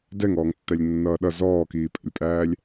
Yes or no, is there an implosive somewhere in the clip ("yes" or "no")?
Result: yes